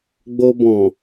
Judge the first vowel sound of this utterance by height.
mid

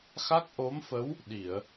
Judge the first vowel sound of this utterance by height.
low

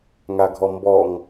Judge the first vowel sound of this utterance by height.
low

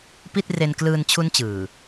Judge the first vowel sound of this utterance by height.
high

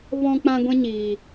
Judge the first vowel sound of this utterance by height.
mid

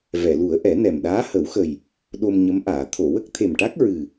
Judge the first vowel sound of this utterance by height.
mid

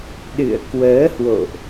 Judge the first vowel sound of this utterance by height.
high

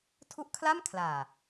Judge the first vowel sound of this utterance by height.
high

